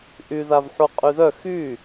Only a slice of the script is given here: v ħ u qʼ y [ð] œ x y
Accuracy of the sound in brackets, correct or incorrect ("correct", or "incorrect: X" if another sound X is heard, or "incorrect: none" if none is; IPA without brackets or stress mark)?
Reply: correct